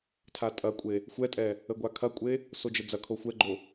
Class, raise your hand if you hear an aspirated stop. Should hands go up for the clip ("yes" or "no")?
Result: yes